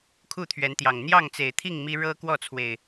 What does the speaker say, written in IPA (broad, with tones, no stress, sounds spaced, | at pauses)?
kʰ u˥˨ t̪ʰ ɥ ɛ˨˦ n t̪ j ɑ˨˩ ŋ n̪ j ɑ˥˨ ŋ t͡s e˨˩ ɪ̯ t̪ʰ i˥˨ ŋ m i˦ ɻ ɤ˦ k w ɔ˥˨ t͡sʰ w e˨˩ ɪ̯